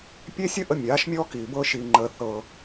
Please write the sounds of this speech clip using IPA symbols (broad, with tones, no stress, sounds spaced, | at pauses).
pʲ e˦ sʲ ə˦ ʔ ə˧ mʲ aː˨˦ ʃ mʲ ɔː˦ k iː˨ b ɤː˧ ʃ iː˨ ŋ͡ǃ əː˨ θ ɤ˧